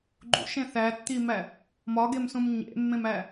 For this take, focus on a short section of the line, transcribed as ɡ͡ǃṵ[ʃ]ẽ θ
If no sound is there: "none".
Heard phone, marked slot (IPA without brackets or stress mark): ʃ